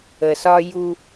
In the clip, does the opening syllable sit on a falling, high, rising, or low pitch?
low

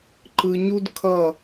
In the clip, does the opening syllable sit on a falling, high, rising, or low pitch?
low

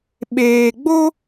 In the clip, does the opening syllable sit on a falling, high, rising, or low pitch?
low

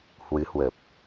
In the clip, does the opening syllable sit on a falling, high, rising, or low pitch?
rising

